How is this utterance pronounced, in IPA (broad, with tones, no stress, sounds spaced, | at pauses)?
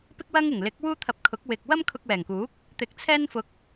p ɪ˥ k̚ w ɐ˥ ŋ ɪ˨˩ ŋ l ɪ˨˥ k̚ w uː˥ t̪ʰ ɐ˧ p̚ kʰ ʊ˨˥ k̚ w ɪ˧ k̚ w ɐ˥ m kʰ ʊ˧ k̚ w ɛː˨˩ ŋ k uː˨˥ k̚ | t̪ ɪ˧ k̚ t͡sʰ ɛː˥ n f ʊ˧ k̚